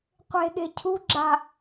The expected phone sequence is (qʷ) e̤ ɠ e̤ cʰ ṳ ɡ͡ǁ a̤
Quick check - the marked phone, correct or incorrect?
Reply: correct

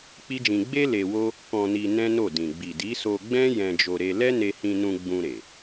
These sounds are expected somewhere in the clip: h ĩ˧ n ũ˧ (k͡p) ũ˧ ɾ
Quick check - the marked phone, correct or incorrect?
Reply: incorrect: ɡ͡b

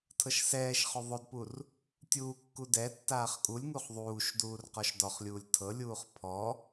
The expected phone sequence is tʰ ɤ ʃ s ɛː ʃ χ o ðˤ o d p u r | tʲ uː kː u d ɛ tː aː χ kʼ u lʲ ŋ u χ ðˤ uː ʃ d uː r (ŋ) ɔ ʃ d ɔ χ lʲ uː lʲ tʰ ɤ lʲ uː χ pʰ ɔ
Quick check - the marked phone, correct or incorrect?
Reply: incorrect: q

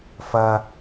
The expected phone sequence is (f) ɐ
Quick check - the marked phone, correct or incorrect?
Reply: correct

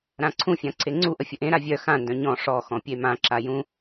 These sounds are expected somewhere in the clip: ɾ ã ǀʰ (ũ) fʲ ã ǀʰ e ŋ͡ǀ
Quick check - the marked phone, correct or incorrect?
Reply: correct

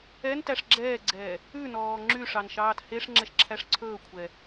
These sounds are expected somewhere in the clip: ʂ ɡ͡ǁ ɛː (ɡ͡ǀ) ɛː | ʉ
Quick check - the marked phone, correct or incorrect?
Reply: correct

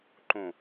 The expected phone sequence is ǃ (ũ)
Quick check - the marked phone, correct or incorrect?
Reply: correct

